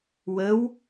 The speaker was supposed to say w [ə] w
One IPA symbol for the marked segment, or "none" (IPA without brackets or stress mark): ə